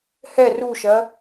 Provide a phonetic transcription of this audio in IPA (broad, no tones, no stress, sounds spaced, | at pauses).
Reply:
h ɛ r u ʃ ɐ